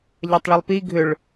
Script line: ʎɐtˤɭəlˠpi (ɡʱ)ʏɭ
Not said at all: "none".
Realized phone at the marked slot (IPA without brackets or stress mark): ɡʱ